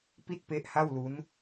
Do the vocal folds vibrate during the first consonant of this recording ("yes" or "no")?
no